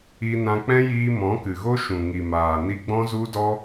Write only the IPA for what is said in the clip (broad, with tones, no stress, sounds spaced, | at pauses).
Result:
i˧ n ã˧ k͡p ɛ̃˦ j iː˧ m ɔ̃˨˦ k ɨ˨ ɣ o˦ ʃ ũ˨ ŋ i˨ m aː˨ n i˧ ɡ͡b ɔ̃˦ z u˦ d ɔ˦